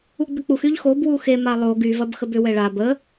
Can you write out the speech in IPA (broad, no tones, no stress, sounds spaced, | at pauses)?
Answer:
u ɡ͡b ʏ k͡p u x y ʎ x o b w u x e m a lˠ o ɡ y v ɐ b x ə b ʏ w ɛ ɭ a b ə